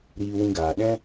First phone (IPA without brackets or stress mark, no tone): ɾ